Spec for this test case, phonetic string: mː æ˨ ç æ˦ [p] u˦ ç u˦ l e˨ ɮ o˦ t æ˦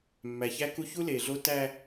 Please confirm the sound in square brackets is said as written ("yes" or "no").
no